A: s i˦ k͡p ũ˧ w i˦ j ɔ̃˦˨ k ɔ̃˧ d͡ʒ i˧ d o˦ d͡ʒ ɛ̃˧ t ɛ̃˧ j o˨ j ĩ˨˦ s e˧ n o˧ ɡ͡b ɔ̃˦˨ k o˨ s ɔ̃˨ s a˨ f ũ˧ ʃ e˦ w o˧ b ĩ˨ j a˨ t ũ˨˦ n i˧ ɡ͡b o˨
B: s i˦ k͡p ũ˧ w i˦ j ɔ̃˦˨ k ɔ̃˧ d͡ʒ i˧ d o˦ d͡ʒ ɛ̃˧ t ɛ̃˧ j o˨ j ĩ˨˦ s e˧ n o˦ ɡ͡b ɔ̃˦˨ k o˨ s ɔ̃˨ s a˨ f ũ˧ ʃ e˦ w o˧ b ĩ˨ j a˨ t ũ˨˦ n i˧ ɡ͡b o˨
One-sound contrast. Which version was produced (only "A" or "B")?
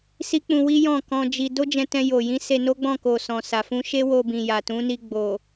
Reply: B